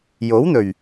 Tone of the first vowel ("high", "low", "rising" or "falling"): rising